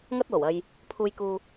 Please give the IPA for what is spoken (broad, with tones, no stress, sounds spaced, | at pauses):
ŋ ɐ˥ t̚ w o˨˩ w ɐ˧ j | pʰ uː˥ j k uː˥